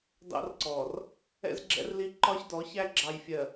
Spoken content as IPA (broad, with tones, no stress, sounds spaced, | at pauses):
d ɑ̰˦ r ǀ ɔː˨ r | ɛ̰˦ z ɡ͡ǁ ɛ̰˦ r l i˦ ǃ ɒ˦ ç d ɔ˨˦ ç æ˦ ɡ͡ǁ ɑ˨ j fʲ ɜ˨